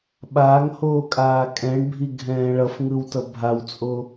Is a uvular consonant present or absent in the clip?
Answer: absent